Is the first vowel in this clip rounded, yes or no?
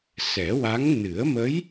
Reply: no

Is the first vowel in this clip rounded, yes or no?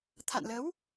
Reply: no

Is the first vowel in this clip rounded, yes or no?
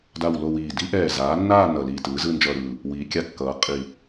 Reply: no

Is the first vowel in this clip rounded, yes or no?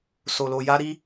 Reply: yes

